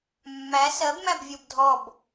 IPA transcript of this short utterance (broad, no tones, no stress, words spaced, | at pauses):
mːæ sɜbmæbvʲɔb dʱɔb